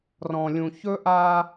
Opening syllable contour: low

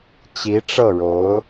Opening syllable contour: rising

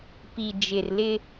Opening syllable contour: low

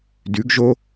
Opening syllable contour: rising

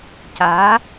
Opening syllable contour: rising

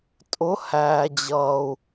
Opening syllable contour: rising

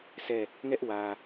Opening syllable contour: falling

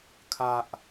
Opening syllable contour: low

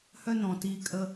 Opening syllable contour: high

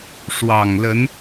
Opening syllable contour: low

